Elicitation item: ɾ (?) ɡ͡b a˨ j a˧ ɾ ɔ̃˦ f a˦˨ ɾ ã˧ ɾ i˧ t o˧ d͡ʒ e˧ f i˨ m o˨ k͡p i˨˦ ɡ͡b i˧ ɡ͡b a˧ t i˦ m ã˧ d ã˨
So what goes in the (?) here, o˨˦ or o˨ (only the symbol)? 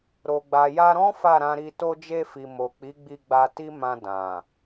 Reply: o˨